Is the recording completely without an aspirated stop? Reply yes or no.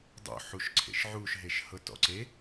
no